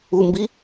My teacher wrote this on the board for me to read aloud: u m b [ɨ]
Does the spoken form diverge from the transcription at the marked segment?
yes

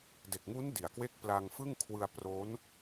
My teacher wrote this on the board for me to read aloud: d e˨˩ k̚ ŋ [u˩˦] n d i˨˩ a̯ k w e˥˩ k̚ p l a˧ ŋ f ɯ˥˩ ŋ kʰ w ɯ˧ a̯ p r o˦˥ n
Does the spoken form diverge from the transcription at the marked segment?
yes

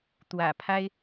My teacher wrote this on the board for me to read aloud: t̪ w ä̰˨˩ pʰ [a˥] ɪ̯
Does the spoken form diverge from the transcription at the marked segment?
no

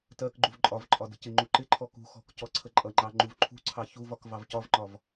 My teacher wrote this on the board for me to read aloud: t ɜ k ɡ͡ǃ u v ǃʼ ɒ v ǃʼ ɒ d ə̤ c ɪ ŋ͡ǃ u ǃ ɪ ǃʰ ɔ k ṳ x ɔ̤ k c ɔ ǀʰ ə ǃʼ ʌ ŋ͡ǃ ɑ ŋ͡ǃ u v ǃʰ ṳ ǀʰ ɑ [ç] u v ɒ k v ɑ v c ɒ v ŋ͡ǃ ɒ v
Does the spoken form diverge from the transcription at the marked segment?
no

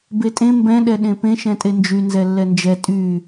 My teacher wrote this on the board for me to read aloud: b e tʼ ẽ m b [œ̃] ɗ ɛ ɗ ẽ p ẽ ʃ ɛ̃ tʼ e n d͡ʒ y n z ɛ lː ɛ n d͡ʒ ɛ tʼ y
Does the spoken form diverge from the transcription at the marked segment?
yes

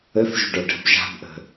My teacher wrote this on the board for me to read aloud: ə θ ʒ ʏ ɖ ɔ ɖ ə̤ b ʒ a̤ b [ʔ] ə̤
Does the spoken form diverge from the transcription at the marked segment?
no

